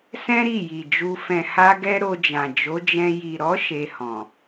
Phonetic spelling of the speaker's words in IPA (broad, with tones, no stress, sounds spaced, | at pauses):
s ɛ̃˦ ɾ i˦˨ j i˨ d͡ʒ u˧ f ɛ̃˨ h a˧ ɡ ɛ˧ ɾ o˧ d͡ʒ ã˨ d͡ʒ o˨˦ d͡ʒ ɛ̃˧ j i˨ ɾ ɔ˨˦ ʃ e˧ h ɔ̃˨